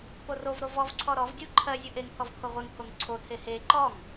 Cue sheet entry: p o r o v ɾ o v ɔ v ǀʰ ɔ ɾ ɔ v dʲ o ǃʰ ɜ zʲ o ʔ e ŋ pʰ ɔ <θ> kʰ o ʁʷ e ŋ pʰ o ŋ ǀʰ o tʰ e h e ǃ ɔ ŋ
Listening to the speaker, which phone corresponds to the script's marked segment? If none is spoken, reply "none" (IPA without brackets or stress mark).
v